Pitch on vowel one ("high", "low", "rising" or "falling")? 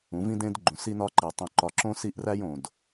rising